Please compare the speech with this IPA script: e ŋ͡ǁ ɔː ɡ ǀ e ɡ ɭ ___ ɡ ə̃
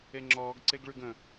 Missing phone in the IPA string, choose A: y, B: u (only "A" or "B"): A